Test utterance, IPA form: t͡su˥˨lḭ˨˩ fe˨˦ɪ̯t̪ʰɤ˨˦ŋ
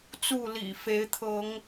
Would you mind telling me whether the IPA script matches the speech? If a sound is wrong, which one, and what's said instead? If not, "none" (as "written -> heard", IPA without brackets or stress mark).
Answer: none